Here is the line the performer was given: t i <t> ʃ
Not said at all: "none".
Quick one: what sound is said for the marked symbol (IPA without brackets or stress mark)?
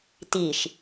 none